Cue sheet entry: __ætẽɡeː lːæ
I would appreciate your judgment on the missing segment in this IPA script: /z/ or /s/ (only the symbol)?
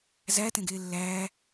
z